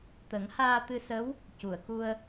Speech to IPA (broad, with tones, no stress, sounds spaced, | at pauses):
t̪ ə˨˩˦ ŋ h aː˧ t̪ ɨ˧ s ə˧˥ w | c u˨˩˨ ə̯ k u˧ ə̯